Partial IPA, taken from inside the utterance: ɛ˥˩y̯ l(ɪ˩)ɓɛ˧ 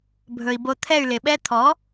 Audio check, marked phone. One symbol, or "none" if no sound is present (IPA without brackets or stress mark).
ɪ˩